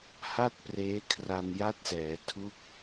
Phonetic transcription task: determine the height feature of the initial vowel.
low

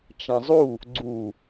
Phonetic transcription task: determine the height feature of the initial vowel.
low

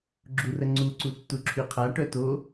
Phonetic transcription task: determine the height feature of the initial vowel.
high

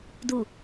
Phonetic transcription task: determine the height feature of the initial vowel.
high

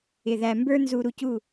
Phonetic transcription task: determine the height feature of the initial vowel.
high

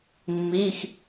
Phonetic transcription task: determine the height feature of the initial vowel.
high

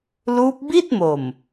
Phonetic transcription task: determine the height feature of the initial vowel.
high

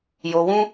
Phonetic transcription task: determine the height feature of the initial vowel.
mid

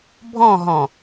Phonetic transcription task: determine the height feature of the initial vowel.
mid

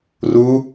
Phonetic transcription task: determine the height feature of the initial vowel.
high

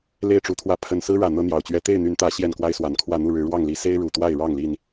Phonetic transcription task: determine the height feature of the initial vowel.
mid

